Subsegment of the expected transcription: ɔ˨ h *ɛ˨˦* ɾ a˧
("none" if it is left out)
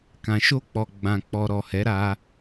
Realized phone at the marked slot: ɛ˨˦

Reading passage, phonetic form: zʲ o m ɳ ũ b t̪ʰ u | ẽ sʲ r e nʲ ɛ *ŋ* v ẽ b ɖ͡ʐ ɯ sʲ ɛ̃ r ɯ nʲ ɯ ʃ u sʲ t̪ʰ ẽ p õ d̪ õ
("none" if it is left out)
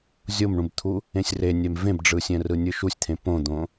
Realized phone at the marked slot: m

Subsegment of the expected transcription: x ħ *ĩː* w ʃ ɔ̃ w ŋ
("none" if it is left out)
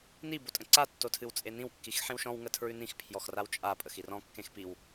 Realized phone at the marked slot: ĩ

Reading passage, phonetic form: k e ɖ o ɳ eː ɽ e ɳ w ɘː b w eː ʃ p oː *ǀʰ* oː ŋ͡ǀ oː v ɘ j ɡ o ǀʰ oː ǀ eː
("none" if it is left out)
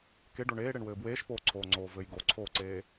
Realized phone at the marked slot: ǀʰ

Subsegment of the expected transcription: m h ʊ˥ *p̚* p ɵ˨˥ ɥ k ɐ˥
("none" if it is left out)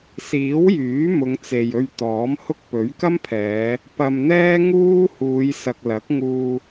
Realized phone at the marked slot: k̚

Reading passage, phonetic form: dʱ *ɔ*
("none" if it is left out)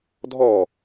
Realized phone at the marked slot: ɔ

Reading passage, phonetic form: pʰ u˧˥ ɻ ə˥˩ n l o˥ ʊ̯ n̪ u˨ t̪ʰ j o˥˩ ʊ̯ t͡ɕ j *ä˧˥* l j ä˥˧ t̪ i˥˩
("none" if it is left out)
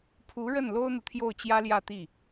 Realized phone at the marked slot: ä˥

